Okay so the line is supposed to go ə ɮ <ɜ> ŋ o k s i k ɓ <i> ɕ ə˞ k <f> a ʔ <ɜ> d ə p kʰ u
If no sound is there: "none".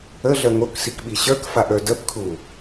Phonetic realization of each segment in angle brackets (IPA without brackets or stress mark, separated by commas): ɜ, i, f, ə˞